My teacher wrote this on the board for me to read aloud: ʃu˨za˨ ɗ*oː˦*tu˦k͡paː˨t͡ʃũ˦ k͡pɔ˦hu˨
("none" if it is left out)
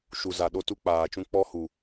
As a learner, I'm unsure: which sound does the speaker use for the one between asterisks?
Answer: o˦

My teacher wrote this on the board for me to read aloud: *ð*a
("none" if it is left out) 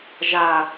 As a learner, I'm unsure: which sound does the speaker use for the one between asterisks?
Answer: ʒ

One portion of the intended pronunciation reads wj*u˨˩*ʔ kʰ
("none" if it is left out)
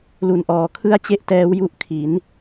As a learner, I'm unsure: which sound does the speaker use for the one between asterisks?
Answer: u˦˥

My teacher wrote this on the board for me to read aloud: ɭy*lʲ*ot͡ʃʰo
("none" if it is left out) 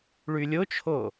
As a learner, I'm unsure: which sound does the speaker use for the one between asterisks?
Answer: lʲ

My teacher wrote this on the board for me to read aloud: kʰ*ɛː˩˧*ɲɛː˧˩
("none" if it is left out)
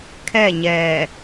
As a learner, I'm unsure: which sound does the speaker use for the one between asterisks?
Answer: ɛː˥˨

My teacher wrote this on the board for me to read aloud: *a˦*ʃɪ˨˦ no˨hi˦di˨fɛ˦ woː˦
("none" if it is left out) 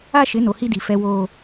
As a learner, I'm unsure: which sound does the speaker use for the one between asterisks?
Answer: a˦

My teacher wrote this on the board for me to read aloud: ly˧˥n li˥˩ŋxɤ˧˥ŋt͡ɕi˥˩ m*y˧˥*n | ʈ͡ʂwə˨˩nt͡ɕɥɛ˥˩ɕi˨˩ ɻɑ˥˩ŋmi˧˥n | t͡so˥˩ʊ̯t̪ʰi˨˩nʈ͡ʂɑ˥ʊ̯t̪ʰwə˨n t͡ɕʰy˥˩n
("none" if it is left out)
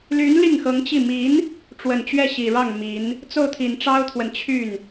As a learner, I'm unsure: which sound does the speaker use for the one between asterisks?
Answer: i˧˥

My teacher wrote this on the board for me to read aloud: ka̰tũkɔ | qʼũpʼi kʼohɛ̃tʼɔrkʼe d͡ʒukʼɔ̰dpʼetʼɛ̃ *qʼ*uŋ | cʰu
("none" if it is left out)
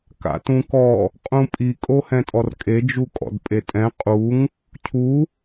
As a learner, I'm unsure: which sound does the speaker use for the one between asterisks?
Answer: qʼ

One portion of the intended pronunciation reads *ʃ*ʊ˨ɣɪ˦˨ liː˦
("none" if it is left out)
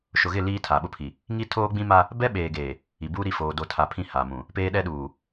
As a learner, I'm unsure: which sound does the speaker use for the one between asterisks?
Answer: ʃ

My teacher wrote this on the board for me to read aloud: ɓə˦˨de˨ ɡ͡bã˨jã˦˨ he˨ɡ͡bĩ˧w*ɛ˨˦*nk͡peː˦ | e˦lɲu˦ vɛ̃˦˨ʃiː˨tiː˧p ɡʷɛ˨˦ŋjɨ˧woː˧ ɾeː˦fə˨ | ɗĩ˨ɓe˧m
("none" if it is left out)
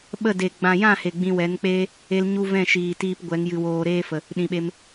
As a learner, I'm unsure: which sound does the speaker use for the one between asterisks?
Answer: ɛ˨˦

